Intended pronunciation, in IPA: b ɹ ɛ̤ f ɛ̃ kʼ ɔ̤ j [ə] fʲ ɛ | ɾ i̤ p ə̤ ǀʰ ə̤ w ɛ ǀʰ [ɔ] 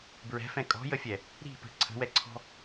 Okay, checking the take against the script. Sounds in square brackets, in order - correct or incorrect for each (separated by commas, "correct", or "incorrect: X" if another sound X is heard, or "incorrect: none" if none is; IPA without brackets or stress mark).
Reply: correct, incorrect: ɔ̤